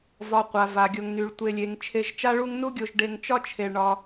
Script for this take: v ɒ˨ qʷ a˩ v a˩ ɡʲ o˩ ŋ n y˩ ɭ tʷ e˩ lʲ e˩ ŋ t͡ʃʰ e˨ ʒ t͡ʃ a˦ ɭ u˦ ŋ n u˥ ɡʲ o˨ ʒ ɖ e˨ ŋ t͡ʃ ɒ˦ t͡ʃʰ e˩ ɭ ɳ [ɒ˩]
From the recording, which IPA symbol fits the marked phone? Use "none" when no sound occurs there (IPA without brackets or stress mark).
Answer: ɒ˩